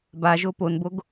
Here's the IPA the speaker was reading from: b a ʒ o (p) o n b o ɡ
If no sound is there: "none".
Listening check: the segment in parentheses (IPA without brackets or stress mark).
p